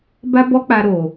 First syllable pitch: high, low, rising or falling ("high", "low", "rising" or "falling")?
high